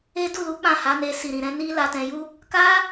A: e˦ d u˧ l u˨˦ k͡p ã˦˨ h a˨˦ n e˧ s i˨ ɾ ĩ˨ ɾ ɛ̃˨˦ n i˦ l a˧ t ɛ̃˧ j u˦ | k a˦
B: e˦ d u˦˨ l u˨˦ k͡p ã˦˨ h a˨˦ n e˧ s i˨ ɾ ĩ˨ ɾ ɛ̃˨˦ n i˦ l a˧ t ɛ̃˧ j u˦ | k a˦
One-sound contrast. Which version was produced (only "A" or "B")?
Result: B